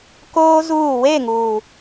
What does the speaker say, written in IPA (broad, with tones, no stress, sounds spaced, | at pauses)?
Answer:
k oː˦ z uː˦˨ w e˦˨ ŋ uː˨